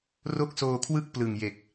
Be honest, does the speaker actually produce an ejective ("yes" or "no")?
no